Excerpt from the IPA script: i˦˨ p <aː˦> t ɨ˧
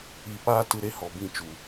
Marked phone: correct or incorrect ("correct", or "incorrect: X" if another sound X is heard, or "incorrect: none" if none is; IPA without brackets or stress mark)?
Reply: correct